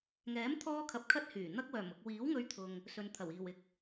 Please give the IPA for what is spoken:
ŋɛː˨˥mt̪ʰɔː˧ kʰɐ˨p̚kʰɐ˧t̚ hyː˨˩ n̪ɐ˧k̚wœː˨˩mʊ˨k̚ wiː˨˥wŋɵ˧ɥt̪ʰʊ˨ŋ | sɵ˨nt̪ʰɐ˨˩w iː˨˩wɪ˨k̚

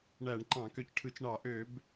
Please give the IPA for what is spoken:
ɳæ˧˩˧ɳǃɑ̃˧˩˧ kø˧cʈʰɯ˧˩˧t͡ʃ ɳɑ˧˩˧ʔø˧˩˧b

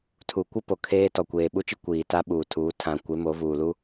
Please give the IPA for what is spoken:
tʰu˨kʷɪ˦ po˨kʰeː˦tɔ˨ kʷeː˨ɓu˦t͡ʃi˦ kʷiː˨ta˦ɓuː˨tʰuː˨˦ tʰã˨kʷe˨˦ mo˨˦vuː˨lu˦

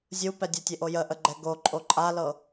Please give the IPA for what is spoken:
zʲupɛ dʲətʲeʔo jəʔəɡ͡ǃɛ ɡoǃʼo ǃʼalɤ

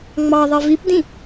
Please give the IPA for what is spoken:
ŋ͡mɑðˤi vipdĩ

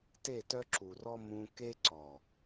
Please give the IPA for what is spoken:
te˦˨tœ˦ǁu˨rɔ˦ mũ˧ke˦ǀɔ˨

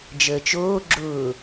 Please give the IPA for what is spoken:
d͡ʒəːt͡ʃoː ɡ͡ǁʊː

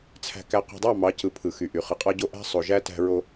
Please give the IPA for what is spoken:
t͡sʰæ̤˨kæ˨qṳ˨dˤɑ˦˨ mɑ˨˦cɯ˨ pʰɯ˨xy˨ ʔy˨χɯ˨qʼɑ˦ ɟo˦ʔæ̤˦sˤo˨ʒæ˦ tæ̤˦ɹo˦

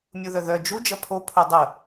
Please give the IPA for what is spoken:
mʲuðœðœ d͡ʒu d͡ʒɐpʰo pʰodˤə

